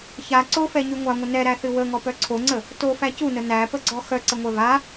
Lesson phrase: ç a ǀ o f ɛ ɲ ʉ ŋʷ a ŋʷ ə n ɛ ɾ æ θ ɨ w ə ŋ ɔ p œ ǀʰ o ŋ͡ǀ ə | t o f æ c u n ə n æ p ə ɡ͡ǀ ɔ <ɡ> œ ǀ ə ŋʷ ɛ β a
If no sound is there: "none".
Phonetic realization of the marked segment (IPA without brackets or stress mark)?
x